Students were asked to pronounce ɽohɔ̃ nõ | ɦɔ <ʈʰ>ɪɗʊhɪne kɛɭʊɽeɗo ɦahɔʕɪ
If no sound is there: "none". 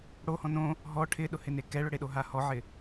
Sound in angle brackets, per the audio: ʈʰ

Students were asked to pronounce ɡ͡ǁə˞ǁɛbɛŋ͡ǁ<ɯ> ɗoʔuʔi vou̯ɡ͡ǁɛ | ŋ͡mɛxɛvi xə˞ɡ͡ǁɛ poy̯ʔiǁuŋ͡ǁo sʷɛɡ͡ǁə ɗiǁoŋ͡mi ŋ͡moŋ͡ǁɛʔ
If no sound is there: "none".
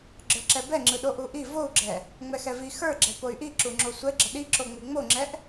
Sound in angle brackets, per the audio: ɯ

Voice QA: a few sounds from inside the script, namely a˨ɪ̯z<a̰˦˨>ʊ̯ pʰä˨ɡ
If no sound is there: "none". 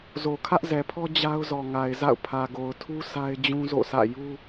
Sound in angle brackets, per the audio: a̰˦˨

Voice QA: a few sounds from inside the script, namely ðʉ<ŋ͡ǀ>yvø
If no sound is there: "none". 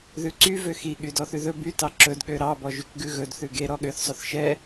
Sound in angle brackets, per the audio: ǀ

